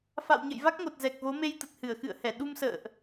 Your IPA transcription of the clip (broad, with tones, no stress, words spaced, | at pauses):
fa̰˧˨wɲə̰˧˨jva˦˥k̚ŋo˨˩t̚ zɛ˨˩k̚vo˨˦me˧j t̪ə˨˩t̚hɨ˧˩ə̯xɨ̰˧˨ə̯hɛ˧˩ ɗu˧msə̰ː˧˨ʔ